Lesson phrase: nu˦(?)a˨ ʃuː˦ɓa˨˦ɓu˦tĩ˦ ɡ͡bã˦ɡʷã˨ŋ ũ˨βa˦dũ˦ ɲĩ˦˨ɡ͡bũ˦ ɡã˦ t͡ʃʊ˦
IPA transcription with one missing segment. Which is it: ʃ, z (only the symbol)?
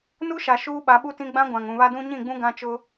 ʃ